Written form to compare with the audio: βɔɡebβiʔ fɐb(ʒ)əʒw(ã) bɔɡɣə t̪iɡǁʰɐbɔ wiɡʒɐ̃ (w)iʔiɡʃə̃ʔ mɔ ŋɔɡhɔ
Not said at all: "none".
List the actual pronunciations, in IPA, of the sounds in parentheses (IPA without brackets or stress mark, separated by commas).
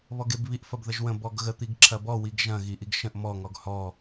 ð, ə̃, ɣ